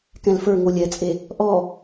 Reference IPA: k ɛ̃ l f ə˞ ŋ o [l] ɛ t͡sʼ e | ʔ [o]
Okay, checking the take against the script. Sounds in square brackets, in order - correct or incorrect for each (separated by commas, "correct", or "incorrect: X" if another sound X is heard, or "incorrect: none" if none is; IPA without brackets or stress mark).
incorrect: lʲ, incorrect: ɔ